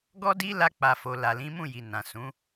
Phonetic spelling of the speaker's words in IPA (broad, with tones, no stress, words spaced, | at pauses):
ɡɔ˦di˦ la˦k͡pa˧fo˧ la˨lĩ˨˦mũ˦˨ji˨ nã˨sũ˨˦